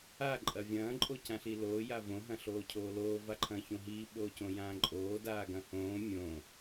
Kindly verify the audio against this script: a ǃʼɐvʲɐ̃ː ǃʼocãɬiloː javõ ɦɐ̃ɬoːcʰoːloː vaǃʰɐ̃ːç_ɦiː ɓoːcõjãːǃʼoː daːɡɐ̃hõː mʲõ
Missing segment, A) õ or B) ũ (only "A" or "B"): A